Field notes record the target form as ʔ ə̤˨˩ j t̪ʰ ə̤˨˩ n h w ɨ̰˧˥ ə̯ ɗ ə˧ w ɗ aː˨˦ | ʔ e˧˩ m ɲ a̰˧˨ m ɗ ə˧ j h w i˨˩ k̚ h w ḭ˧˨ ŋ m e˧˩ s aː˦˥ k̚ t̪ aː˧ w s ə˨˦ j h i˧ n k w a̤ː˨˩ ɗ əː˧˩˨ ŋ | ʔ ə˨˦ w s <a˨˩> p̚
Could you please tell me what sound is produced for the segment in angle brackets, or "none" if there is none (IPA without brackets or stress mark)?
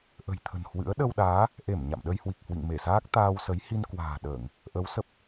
ə˨˩